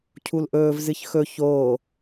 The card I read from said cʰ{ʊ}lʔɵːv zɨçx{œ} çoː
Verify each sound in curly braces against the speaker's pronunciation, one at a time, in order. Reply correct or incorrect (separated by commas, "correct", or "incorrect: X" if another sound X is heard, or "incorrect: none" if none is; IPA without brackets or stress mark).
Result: incorrect: u, incorrect: ɵ